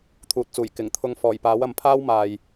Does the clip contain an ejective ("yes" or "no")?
no